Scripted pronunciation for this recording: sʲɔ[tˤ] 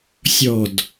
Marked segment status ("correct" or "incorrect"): incorrect